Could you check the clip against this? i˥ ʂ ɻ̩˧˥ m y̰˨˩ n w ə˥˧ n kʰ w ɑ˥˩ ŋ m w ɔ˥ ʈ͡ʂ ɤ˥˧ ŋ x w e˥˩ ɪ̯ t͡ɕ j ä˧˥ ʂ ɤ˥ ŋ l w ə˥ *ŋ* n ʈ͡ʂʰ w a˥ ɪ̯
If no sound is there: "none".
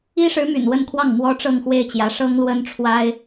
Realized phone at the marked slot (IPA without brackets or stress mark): none